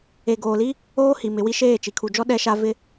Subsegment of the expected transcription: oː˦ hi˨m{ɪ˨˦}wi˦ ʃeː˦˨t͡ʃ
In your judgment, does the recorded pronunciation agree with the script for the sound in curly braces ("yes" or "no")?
yes